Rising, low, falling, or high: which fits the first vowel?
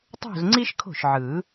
falling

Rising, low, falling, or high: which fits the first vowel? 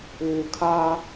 low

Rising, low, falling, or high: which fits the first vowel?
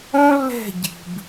high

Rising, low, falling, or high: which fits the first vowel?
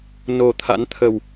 low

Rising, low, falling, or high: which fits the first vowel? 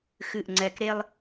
low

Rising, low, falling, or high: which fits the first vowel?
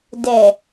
low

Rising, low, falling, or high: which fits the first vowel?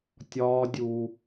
high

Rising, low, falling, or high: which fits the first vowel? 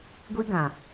high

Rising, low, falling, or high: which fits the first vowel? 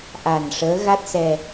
low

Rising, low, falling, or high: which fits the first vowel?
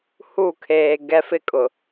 falling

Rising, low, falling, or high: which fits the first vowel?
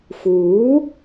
rising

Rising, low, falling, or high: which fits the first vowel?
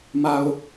low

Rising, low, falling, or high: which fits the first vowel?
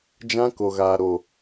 high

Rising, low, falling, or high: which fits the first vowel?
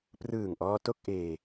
low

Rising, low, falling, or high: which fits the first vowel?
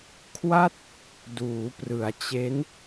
falling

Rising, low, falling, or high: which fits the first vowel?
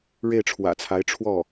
falling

